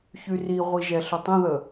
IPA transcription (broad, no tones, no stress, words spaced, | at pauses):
çyriʁʷi ʒɛɬətˤə̃ðə